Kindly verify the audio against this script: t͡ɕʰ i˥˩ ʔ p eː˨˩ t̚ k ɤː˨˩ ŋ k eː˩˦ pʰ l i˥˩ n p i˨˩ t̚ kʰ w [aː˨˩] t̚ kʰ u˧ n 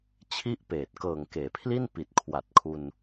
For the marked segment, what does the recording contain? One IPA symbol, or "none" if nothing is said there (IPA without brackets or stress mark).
a˨˩